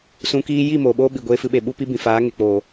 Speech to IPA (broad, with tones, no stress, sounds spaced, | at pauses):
s ũ˧ k iː˦ j i˦˨ m oː˨ ɓ oː˦ ɓ i˨ ɡʷ eː˧ f ɨ˧ ɓ e˨ ɓ u˦ p i˦ b ĩ˨ f aː˨˦ ŋ e˨ k͡p oː˨